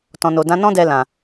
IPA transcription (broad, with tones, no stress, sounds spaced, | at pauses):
t ɔ̃˨ n o˨ d ã˨˦ n ɔ̃˦ d ɛ˧ l ã˨